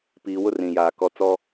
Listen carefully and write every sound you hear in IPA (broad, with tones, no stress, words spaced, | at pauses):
piː˨wʊ˦ rĩ˨jaː˨kɔ˦ t͡sɔ˦